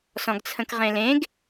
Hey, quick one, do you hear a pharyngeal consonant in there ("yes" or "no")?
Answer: no